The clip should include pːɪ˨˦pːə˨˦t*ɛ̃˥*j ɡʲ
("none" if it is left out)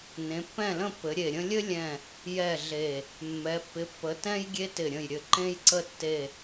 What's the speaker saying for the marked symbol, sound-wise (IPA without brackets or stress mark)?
ɛ̃˥